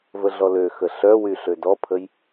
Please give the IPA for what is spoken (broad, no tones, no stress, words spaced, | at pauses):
vəɮɔløxə ɬœwy ɬødɔpʰəj